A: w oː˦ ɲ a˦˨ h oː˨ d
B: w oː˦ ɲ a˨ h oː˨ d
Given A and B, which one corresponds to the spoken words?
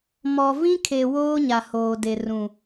B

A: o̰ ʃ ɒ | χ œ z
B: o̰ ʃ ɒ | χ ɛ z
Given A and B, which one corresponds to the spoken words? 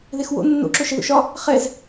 B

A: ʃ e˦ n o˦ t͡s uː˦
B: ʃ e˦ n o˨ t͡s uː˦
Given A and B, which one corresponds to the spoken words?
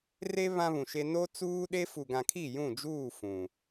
A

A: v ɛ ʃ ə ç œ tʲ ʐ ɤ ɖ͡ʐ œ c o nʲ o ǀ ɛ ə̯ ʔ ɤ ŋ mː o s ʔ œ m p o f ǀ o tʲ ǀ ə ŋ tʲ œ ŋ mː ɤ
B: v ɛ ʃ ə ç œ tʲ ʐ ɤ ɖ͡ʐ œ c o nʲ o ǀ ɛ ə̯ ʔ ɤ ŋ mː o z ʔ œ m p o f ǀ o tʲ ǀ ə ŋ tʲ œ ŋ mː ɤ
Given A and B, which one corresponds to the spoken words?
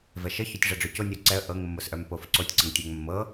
A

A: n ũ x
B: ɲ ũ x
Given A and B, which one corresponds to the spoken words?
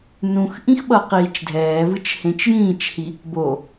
A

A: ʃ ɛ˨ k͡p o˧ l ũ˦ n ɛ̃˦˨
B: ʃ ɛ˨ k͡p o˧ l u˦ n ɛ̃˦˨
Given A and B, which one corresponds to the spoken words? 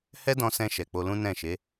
A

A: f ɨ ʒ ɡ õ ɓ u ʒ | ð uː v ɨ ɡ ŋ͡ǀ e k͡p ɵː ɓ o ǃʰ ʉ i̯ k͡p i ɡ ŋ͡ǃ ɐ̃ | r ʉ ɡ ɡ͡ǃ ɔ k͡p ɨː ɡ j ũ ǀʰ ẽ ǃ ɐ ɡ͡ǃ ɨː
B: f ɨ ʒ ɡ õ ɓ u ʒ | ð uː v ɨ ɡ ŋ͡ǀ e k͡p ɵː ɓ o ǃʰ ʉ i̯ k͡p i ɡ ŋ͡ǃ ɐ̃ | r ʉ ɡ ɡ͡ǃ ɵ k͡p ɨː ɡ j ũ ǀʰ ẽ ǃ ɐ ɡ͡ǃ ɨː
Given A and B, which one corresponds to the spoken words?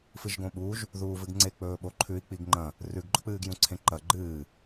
B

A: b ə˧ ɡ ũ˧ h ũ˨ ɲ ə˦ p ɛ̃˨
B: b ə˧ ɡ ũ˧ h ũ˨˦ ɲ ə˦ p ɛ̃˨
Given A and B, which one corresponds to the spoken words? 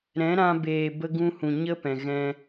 A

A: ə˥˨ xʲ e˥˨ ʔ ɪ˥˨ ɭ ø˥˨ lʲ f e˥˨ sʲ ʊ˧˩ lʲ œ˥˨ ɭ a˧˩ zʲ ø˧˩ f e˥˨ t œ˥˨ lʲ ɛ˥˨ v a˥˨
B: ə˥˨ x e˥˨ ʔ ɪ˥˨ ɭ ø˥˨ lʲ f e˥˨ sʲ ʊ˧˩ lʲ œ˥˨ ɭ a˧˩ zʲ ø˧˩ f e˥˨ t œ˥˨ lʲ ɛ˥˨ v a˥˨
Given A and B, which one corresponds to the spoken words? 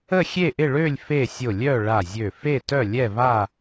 A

